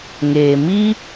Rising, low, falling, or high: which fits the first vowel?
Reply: low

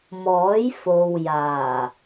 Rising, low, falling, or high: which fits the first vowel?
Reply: rising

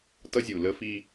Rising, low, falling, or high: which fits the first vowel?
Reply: high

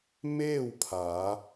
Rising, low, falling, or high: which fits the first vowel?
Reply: falling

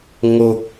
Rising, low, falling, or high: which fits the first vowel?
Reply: low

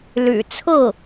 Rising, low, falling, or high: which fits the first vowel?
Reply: low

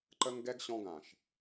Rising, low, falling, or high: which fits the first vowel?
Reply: high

